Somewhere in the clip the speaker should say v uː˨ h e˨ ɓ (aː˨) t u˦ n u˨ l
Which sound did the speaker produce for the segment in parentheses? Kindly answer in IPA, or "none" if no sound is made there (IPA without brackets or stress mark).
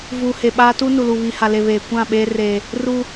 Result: aː˦